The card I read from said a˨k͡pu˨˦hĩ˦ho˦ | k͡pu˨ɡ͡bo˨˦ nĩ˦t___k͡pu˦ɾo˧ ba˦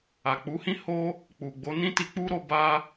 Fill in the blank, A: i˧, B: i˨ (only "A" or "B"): A